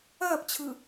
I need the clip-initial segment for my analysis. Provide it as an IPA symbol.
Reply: ɐː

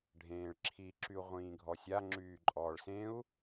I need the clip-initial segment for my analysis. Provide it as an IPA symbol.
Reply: ɖʱ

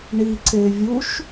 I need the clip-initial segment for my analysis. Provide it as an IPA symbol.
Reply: ɳ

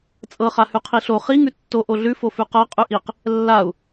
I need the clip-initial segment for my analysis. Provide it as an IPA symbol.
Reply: t͡sʼ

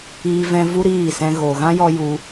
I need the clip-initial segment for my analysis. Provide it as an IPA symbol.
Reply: iː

